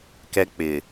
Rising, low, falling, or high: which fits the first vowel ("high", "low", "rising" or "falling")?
high